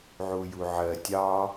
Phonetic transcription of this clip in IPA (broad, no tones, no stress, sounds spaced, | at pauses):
ʕ u j u ʕ ɜ tʲ ɑ